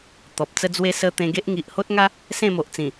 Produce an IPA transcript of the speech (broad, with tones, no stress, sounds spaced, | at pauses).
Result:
t̪ ɔ˨ p̚ t͡s ə˦ d͡z w e˦ s ə˧ t̪ ẽ˧ ɡ e˦ ʔ ŋ i˨ ʔ h o˦ t̚ ŋ a˦ | s ẽ˥˧ m o˨ ʔ t͡s ĩ˨˩